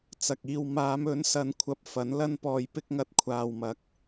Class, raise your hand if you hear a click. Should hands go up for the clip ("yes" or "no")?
no